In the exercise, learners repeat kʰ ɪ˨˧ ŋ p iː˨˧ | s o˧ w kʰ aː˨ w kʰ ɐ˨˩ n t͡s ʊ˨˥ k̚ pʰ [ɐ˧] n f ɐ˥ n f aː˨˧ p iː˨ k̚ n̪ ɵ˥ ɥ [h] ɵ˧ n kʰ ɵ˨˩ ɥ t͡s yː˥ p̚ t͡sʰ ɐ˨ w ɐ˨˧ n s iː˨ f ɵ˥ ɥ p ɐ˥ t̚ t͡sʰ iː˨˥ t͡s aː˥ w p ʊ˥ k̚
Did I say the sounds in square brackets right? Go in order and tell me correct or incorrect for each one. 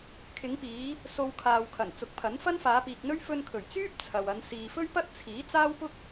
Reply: incorrect, incorrect

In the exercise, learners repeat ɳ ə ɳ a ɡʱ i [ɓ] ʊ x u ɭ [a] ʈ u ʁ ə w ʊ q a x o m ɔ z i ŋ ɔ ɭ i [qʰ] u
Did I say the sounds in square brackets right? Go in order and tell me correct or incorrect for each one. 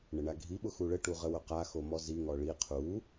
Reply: correct, incorrect, correct

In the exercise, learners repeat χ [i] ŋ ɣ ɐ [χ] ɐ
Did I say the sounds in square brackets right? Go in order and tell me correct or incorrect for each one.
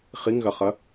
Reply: correct, correct

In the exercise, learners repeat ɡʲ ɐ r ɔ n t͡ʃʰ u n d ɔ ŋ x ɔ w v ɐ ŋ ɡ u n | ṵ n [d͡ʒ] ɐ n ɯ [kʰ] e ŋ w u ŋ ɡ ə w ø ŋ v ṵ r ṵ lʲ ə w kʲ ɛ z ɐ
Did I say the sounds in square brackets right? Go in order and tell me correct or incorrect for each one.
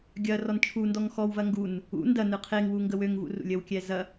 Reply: incorrect, incorrect

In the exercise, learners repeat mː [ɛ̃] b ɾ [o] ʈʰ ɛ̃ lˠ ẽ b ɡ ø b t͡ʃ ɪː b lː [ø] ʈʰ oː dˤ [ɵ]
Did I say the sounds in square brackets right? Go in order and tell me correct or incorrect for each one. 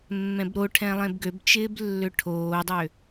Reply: correct, correct, correct, incorrect

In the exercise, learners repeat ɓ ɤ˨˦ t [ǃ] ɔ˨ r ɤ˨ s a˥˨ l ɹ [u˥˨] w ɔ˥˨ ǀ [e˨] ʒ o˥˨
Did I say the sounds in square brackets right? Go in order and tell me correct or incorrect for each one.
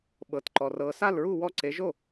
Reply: correct, correct, incorrect

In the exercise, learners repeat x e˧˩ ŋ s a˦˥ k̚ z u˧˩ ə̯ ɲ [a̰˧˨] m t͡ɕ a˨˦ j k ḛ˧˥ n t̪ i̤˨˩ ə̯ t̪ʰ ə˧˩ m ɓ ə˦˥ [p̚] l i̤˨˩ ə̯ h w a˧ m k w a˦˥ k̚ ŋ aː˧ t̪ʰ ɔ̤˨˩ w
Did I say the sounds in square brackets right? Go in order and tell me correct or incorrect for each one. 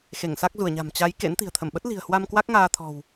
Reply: incorrect, incorrect

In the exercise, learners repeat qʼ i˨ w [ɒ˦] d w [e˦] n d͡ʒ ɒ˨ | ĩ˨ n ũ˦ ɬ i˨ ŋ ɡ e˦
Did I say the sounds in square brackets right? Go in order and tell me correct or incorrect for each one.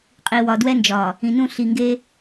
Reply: incorrect, incorrect

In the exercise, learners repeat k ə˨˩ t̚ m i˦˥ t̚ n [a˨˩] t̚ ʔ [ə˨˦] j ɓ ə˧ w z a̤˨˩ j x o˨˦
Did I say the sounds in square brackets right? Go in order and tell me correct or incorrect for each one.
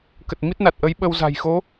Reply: correct, correct

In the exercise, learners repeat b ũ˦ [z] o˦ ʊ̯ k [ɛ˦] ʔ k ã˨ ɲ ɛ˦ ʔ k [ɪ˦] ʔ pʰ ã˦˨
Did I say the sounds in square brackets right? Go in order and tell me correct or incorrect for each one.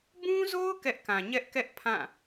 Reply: correct, correct, incorrect

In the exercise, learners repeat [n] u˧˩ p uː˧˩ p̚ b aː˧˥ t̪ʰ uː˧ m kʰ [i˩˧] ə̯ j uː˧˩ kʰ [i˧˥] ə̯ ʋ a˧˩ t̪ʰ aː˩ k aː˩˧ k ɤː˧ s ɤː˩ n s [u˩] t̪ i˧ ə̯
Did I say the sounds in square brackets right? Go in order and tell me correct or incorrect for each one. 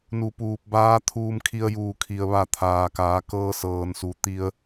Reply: correct, incorrect, incorrect, correct

